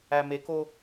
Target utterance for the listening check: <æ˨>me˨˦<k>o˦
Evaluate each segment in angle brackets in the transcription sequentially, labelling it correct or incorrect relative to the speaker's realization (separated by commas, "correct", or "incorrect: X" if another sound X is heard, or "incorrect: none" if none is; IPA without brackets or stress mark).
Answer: correct, correct